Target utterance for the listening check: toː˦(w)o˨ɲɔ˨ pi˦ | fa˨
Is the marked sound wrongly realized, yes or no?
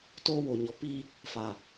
no